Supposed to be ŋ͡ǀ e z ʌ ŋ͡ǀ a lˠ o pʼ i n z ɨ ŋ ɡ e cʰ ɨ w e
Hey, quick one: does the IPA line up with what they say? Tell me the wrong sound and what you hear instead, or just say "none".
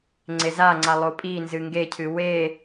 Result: ʌ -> a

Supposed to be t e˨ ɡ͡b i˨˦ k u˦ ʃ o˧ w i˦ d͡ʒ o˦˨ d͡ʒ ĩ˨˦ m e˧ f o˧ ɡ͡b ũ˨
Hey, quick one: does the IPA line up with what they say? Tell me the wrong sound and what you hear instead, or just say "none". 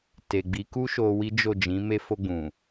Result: none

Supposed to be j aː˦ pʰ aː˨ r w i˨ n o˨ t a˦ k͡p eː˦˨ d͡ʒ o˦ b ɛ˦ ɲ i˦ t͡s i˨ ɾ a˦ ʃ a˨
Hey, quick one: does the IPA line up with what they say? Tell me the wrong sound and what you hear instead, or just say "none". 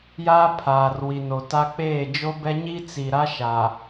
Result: none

